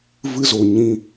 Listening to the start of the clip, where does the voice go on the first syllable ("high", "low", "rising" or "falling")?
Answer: high